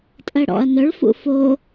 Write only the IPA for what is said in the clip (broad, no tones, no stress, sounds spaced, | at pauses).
tʼ ɜ ɽ ɔ̰ ɐ̯ n œ ɭ f ṵ f o